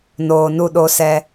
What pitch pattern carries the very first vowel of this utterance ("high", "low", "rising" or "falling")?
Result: low